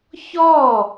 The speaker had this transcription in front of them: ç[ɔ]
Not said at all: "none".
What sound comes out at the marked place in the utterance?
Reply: ɔ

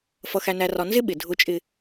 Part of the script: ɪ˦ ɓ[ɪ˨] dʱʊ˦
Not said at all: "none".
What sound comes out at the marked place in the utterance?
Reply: ɪ˨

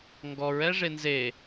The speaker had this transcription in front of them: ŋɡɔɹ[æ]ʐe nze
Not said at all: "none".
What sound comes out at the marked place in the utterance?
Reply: ɛ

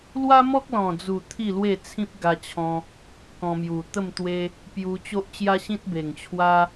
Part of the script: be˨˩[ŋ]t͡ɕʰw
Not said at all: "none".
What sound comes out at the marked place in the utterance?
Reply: ŋ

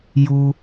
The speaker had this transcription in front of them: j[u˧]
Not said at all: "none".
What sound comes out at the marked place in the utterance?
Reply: u˧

